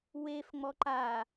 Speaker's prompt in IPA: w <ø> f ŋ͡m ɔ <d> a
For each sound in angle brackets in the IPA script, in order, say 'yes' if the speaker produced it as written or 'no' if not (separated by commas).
no, no